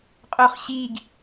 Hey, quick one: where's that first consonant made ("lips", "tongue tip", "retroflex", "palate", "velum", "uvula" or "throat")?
uvula